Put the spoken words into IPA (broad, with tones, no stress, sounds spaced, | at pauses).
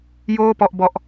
j oː˥˩ p ɔ˥˩ ʔ b ɔ˦˥ ʔ